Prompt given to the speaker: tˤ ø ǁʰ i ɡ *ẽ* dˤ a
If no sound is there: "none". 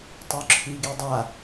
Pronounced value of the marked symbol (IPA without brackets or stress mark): e